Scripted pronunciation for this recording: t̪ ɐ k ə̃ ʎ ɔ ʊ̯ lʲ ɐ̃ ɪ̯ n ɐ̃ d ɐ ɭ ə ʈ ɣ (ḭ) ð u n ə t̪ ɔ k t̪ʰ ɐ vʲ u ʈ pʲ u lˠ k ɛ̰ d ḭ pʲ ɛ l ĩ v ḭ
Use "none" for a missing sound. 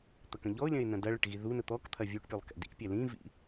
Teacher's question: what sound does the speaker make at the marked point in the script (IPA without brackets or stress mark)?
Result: i